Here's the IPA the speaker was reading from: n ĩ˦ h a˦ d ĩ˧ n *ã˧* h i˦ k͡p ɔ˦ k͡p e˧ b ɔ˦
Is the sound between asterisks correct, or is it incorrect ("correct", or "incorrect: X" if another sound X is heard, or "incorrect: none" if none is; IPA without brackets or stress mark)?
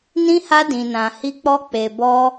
correct